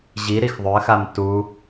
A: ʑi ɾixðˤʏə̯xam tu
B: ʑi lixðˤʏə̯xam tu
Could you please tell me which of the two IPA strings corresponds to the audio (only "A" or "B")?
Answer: A